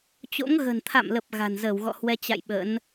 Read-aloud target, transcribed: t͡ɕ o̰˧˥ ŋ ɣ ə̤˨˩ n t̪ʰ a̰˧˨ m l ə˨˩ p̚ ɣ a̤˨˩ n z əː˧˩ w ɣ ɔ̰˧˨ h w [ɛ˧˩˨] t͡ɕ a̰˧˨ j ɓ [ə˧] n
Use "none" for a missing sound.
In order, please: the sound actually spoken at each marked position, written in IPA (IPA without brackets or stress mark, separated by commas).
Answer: ɛ˧, ə̰˧˥